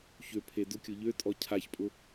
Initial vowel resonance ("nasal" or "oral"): oral